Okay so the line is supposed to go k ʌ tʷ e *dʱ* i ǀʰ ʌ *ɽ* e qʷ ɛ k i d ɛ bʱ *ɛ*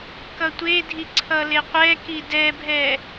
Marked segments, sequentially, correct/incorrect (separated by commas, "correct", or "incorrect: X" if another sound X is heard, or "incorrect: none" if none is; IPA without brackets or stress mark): correct, incorrect: l, correct